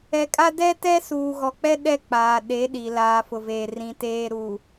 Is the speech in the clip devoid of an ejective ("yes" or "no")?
no